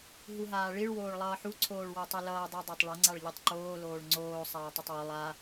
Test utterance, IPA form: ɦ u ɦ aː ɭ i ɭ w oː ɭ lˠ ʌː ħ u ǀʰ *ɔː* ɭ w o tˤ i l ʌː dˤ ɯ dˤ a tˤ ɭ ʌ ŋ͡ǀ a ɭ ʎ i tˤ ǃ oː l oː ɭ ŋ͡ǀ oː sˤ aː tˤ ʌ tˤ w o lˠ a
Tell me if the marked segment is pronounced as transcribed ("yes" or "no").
no